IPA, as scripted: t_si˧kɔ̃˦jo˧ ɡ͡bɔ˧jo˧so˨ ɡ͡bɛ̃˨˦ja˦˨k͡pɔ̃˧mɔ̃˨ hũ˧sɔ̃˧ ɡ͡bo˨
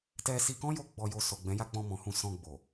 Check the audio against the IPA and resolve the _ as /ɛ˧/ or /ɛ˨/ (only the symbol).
ɛ˧